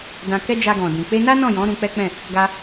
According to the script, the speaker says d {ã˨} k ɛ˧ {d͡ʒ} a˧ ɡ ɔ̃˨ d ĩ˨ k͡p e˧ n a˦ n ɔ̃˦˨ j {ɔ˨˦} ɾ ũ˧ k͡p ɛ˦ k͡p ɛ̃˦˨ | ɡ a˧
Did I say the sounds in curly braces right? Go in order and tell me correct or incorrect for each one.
correct, correct, incorrect

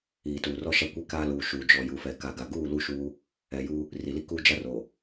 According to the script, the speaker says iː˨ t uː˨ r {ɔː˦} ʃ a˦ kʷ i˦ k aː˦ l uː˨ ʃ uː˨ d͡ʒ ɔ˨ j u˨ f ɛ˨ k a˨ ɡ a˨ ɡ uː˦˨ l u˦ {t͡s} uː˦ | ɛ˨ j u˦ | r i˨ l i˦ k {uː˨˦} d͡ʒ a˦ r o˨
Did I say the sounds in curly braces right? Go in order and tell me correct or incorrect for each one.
incorrect, incorrect, incorrect

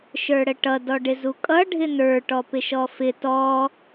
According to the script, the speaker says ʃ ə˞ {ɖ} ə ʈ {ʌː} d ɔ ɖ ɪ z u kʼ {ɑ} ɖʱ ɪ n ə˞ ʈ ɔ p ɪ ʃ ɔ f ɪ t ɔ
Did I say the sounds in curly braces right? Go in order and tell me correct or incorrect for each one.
incorrect, incorrect, incorrect

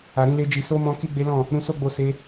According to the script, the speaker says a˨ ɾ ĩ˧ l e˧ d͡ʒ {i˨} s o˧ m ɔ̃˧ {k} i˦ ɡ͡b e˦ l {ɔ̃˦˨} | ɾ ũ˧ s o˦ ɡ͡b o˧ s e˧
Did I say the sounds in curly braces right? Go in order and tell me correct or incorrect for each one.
correct, correct, correct

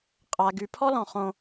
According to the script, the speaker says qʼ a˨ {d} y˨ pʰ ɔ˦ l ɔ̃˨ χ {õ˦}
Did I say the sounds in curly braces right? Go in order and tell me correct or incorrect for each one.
incorrect, correct

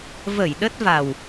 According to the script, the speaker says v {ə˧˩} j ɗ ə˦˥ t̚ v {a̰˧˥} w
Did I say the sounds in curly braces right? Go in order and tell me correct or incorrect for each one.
correct, incorrect

